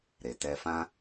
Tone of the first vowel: low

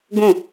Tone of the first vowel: falling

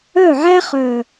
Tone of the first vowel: falling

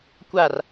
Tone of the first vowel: falling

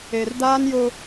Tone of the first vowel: low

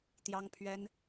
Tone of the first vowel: high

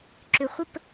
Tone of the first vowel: low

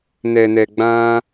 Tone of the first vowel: low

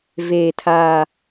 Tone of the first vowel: low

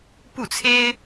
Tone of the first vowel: falling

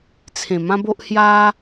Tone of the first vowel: low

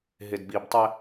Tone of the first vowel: low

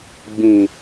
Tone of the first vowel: low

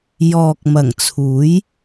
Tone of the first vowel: low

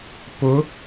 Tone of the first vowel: rising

